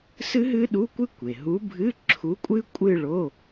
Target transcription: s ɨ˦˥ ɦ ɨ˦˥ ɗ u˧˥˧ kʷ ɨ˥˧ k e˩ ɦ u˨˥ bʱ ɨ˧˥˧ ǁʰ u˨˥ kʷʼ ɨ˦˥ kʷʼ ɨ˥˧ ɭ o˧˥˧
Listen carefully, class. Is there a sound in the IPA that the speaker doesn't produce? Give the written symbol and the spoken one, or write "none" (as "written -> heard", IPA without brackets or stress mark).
k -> kʷ